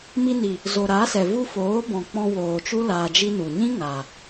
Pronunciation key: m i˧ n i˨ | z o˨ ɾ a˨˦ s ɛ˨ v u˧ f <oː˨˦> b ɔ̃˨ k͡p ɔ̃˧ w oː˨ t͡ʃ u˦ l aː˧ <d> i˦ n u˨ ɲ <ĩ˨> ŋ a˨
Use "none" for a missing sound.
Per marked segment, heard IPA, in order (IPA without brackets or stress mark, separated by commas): oː˨˦, d͡ʒ, ĩ˦